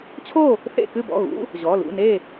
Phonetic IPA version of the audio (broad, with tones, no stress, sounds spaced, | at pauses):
t͡ɕʰ o˥˨ | θ ḛ˥˨ k ɨ˥˨ b ɔ̰˩˧˩ ɣ ṵ˧˥˧ | ʑ ɔ˩˧˩ l ṵ˥˨ n e˥˨